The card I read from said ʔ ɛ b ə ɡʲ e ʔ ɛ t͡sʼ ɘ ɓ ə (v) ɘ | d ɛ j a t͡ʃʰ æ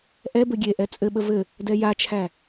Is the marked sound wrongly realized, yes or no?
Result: no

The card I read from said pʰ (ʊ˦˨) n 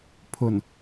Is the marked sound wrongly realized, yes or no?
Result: yes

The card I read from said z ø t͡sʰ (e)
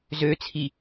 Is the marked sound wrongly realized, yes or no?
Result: yes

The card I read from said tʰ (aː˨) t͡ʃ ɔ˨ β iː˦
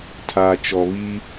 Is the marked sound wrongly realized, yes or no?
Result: no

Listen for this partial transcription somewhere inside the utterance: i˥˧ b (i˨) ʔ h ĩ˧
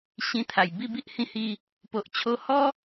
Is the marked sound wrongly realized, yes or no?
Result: yes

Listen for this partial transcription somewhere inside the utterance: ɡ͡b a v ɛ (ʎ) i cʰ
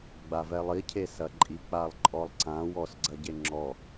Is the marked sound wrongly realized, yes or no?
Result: yes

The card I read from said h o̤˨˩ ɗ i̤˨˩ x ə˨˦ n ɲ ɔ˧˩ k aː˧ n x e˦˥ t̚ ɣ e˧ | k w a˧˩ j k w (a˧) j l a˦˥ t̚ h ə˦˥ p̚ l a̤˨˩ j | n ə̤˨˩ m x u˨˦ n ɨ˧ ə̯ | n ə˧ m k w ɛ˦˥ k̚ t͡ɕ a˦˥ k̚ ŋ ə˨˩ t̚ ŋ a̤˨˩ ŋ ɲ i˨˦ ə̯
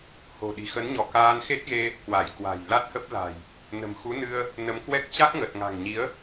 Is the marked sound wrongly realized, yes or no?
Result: yes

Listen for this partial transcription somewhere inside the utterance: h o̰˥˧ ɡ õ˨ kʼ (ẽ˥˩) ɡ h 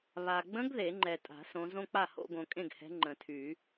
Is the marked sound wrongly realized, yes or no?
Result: no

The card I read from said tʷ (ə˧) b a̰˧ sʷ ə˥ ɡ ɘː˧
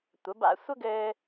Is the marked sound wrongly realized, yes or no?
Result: yes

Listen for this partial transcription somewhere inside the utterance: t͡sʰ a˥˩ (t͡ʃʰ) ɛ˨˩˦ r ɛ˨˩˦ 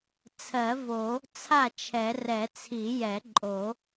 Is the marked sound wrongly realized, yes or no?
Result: no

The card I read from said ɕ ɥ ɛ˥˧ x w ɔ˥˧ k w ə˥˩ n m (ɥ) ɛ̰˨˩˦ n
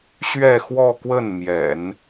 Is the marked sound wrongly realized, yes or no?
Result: yes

